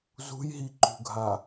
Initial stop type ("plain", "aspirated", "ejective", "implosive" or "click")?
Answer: click